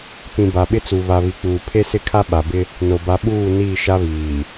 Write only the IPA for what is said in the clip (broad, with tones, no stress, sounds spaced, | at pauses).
p ĩ˨ b a˨ ɓ ɪ˦ t͡s u˨ β a˨ β i˨ k͡p uː˨ pʰ e˦ s ɪ˦ kʰ a˦ ɓ a˨ b ɪ˦ | n o˨ b a˨˦ ɓ uː˦˨ n iː˦˨ ʃ a˦ β iː˨